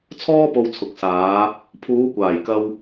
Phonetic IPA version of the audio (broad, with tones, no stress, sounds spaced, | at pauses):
t͡sʰ ɔː˥ p o˧ w t͡sʰ ʊ˨˥ k̚ s aː˨˧ | pʰ uː˨˧ kʷ aː˨˩ j k ɐ˧ w